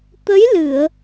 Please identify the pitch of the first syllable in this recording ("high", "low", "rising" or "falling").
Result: rising